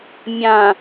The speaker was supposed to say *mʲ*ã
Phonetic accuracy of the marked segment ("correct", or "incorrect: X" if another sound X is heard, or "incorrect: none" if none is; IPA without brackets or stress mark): correct